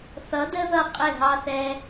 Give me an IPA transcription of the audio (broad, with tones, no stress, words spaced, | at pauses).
θʌ˨˦də˦ ðʌ˦qʼɪ˦˨ɦɑ˦θ ɛ˧